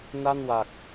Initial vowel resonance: oral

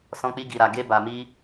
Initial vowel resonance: nasal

